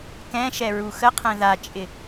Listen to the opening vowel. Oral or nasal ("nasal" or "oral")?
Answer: nasal